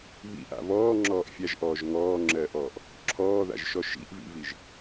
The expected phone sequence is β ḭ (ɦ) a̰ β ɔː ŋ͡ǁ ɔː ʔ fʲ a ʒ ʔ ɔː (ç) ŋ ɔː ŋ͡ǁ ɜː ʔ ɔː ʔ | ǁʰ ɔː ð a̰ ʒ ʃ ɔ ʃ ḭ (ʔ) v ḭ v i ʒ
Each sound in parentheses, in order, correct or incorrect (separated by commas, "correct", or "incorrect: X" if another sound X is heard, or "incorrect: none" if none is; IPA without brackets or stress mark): incorrect: ʔ, incorrect: ʒ, correct